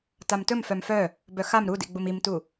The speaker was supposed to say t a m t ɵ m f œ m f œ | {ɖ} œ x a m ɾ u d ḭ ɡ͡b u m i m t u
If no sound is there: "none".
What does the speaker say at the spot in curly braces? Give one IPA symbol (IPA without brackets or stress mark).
b